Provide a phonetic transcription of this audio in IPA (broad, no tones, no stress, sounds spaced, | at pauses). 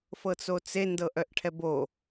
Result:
f ɤ t͡s o t͡s e n d ɤ ʔ œ ʔ ʈʰ ɛ b o